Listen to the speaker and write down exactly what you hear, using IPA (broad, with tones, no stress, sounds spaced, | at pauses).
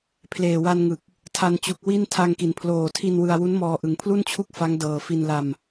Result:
pʰ l eː˨˩ w a˧ n ŋ ɯ˨˩ k̚ | tʰ a˧ n t͡ɕ u˨˩ k̚ w i˥˩ n tʰ a˧ ŋ k i˩˦ n pʰ l oː˨˩ tʰ i˧ n w ɯ˧ a̯ w u˦˥ n m ɔː˧ ʔ ɯ˨˩ ŋ pʰ l u˥˩ n t͡ɕʰ u˥˩ k̚ f a˦˥ ŋ d ɤː˨˩ f i˧ n l a˧ m